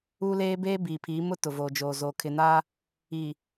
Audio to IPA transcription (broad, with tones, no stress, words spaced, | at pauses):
u˦leː˦ beː˦biː˨pʰiː˨˦mʊ˦ tʊ˨voː˨d͡ʒoː˨ zo˨kʰɪ˨na˦ | i˨